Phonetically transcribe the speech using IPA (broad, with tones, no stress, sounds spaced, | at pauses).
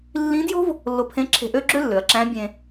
lː ĩ˧˥ d j o̤˥ v | lː o˧ pʰ ẽ˧˥ ǁʰ e̤˧ ʔ ø˥ ɡ͡ǁ ø˥ lː ø˩˧ ɐ̯ ǁ æ̃˧˥ bʲ ẽ˧